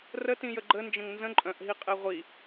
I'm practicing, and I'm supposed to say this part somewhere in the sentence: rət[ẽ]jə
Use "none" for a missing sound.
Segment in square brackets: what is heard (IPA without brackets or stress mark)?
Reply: ĩ